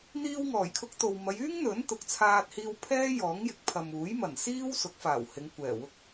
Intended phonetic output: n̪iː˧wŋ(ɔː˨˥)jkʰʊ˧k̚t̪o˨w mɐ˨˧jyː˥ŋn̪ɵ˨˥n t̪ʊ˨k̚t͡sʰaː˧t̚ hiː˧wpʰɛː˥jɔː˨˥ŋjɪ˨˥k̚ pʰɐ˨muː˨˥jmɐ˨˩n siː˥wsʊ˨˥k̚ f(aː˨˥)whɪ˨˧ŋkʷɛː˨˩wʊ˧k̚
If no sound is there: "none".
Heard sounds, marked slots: ɔː˨˩, aː˨˩

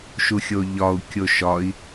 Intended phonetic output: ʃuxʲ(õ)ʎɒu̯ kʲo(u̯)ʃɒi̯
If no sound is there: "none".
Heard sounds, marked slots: o, none

